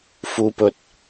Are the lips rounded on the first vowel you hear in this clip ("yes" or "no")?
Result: yes